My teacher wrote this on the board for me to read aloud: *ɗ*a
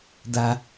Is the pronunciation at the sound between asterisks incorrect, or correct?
incorrect